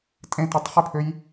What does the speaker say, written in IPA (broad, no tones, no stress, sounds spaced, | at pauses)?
tʼ ẽ t ɯ tˤ χ e pʰ ø j